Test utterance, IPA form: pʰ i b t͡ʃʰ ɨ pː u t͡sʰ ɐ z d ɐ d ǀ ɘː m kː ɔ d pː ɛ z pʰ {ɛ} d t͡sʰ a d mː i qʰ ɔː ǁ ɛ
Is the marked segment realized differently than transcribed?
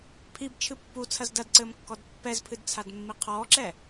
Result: yes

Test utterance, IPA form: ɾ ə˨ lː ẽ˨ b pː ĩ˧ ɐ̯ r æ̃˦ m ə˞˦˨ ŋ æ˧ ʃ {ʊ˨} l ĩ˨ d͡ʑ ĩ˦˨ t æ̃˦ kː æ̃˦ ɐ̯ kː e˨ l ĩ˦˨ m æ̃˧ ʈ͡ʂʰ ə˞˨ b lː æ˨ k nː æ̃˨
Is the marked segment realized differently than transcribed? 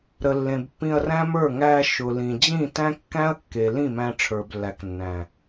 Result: no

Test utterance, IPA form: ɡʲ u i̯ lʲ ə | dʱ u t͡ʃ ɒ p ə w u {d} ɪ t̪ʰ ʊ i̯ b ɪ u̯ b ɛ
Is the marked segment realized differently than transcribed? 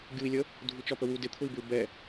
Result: no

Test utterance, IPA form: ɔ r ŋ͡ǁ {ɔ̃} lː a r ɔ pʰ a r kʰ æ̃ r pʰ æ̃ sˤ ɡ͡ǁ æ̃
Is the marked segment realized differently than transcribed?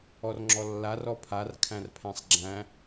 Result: yes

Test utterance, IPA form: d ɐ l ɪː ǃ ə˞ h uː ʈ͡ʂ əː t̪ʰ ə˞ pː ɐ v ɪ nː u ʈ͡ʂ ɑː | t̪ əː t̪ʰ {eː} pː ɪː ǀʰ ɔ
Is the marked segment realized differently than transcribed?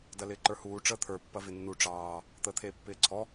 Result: no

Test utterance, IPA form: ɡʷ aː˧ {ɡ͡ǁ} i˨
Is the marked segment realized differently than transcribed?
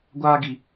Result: yes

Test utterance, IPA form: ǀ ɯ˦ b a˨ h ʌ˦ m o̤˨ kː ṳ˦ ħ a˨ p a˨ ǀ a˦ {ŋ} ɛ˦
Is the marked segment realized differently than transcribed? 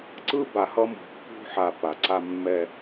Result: yes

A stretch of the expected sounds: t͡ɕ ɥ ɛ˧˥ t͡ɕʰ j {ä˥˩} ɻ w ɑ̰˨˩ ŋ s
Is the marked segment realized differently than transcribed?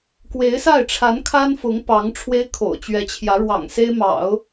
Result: yes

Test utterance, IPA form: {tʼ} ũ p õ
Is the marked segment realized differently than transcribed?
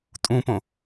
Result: no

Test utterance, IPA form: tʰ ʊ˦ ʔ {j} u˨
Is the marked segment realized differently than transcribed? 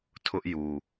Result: no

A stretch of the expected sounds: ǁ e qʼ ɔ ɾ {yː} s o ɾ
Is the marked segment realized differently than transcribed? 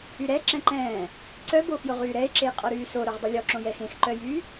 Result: no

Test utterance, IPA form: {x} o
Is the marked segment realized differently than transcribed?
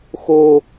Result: no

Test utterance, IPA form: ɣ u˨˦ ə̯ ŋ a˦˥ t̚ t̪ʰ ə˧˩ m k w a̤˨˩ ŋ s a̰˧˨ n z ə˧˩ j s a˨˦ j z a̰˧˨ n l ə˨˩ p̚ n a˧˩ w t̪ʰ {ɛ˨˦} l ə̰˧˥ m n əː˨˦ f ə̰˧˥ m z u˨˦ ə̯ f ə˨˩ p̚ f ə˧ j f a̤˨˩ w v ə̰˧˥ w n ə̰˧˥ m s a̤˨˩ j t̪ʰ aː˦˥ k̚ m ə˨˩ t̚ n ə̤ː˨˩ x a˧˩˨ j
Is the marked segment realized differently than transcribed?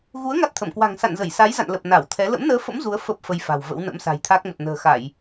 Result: no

